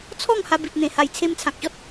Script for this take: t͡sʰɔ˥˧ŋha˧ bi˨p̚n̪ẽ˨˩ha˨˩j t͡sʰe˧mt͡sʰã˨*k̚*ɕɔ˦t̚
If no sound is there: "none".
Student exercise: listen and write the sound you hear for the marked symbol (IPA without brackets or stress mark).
k̚